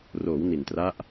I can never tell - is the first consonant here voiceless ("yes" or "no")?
no